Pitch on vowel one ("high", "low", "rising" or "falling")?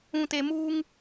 low